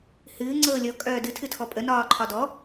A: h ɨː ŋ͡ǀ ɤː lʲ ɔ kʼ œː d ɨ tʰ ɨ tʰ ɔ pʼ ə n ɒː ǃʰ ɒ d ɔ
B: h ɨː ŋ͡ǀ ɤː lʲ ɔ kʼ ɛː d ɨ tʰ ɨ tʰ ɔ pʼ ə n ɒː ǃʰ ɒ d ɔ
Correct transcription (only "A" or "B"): A